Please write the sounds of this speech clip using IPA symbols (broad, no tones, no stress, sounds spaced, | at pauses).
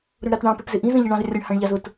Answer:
ɾ ʊ ɳ ɾ ɑ t ɳ ɑ̃ p ɛ p z ɪ ʔ ĩ z ə̃ ʎ ə ɳ ɑ̃ z rʲ ə ɳ h ɑ̃ ɳ ʎ ɑ z ʊ t